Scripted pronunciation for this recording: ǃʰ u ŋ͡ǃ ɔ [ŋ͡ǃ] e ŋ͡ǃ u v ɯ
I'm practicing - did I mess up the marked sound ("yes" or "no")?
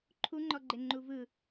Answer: yes